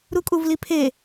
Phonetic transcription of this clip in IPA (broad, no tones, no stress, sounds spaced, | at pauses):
ɾ u kʼ u v l i pʰ e